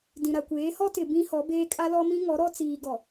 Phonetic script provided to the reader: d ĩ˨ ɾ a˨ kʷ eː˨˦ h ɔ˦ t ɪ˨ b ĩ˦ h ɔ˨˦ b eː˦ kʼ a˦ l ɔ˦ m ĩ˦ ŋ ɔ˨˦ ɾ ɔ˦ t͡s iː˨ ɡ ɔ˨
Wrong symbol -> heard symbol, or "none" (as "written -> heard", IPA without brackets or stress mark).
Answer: none